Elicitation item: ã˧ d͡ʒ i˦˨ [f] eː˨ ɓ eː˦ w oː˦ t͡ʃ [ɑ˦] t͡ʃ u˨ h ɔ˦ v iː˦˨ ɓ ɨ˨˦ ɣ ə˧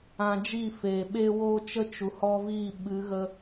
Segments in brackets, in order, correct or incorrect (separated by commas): correct, incorrect